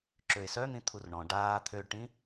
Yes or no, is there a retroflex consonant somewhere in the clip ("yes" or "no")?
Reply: yes